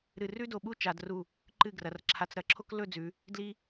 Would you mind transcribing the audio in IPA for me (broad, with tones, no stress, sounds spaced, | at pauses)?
ɾ ɨ˧˩ r ʉ˥ d o˧˩ ɓ u˥ t͡ʃ a˩˧ d r u˧˩ | ǃ ɨ˧˩ ɡ r ɐ˩˧ r ǁʰ a˧ t͡s ɾ ɐ˩˧ ǁʰ o˥ k l ɵ˥˧ d͡z ʉ˩˧ | d l i˧